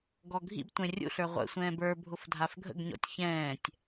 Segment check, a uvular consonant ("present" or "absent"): present